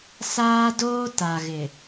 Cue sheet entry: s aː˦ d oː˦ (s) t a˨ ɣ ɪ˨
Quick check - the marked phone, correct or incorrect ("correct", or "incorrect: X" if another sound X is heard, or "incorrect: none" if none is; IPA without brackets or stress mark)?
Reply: incorrect: none